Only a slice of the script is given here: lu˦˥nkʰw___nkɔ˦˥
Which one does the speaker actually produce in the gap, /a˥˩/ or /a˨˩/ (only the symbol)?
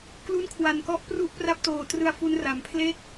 a˨˩